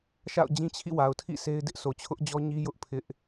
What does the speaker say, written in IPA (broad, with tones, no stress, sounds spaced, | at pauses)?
ʃ a̰˦˨ ʊ̯ d͡ʑ ĩ˦ t͡ɕʰ ḭ˦˨ w a˨ ʊ̯ tʰ ḭ˦˨ s e˦ ɪ̯ d ɪ˦ ʔ sʰ o˨ t͡ɕʰ ʊ˦ ʔ d͡ʑ ɔ˦ ɲ i˦ j ʊ˦ ʔ pʰ ɪ˦ ʔ